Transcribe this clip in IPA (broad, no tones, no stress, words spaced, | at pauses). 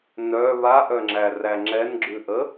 nœ βaʔœŋ͡ǁæræ ŋ͡ǁɛnɡ͡ǁʉʔə